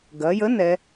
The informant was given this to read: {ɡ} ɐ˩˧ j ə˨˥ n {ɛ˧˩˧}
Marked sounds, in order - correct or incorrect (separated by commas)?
correct, incorrect